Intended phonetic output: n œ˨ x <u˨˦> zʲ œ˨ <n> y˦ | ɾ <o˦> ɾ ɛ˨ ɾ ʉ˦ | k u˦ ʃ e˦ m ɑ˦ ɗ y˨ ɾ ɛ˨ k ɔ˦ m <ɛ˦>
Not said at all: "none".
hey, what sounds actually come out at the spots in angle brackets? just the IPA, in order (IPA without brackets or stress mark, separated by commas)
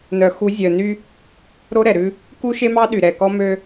u˨˦, n, o˦, ø˦